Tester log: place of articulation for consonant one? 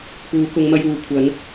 labial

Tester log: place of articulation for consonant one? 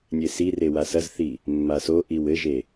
alveolar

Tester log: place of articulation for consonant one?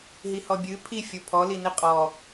glottal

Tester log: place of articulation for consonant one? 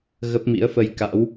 velar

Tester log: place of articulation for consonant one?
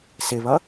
alveolar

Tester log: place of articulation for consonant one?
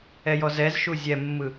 palatal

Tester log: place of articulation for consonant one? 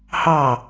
glottal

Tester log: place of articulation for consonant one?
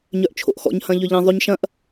palatal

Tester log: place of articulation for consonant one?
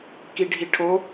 velar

